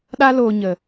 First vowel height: low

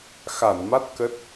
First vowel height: low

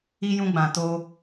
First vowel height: high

